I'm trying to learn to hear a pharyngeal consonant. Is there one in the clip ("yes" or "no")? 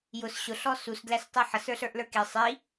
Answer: yes